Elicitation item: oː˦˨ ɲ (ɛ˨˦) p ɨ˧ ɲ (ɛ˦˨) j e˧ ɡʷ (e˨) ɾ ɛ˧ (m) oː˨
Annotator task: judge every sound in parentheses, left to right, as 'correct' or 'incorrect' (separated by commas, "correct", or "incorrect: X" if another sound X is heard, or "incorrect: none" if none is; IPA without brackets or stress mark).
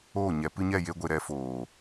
correct, correct, correct, incorrect: f